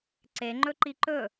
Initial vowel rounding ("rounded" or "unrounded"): unrounded